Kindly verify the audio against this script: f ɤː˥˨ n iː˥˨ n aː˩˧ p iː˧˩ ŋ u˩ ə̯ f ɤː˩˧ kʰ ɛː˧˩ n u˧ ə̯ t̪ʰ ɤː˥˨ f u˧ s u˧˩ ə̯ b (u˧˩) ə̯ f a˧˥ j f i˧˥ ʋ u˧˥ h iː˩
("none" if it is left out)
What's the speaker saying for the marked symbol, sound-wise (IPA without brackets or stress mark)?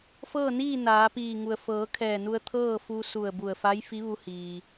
u˧˩